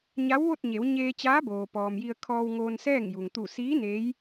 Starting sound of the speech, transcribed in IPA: ɲ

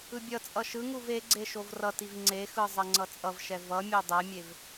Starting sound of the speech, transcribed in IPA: ɯ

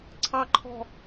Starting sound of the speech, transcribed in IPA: ǀʰ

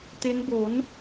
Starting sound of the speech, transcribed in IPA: t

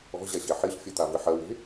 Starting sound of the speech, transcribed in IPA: ɔ̤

